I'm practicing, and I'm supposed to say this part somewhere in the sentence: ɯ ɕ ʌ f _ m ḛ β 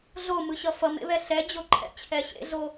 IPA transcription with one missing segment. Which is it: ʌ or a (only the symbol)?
ʌ